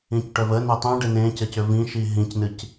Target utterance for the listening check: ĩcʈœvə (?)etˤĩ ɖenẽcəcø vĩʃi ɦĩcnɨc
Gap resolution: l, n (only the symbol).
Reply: n